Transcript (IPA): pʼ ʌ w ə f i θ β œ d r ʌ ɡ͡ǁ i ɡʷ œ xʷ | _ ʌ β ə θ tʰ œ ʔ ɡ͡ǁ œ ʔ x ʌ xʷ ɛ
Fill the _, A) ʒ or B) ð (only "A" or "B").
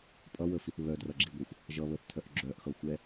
A